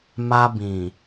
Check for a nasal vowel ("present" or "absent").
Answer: present